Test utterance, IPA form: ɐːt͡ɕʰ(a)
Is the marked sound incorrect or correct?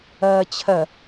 incorrect